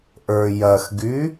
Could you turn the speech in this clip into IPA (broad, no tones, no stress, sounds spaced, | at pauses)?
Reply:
ʔ ə˞ j ɐ x ɡ y